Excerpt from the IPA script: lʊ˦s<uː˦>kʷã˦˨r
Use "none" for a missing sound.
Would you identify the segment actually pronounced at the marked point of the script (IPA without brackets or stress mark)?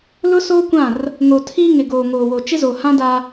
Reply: oː˦